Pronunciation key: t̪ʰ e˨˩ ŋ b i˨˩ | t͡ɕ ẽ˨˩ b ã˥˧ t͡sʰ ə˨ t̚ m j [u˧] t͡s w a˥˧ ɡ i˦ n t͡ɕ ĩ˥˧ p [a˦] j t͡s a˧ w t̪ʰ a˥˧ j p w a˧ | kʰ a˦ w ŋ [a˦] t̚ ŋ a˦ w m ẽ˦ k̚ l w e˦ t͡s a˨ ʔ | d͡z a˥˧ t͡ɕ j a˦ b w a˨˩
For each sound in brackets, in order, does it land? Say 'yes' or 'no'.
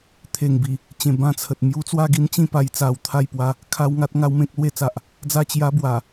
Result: no, no, yes

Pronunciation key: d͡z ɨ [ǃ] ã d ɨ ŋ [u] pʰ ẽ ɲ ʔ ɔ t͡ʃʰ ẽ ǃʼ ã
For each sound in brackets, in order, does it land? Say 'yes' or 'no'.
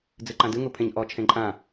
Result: yes, yes

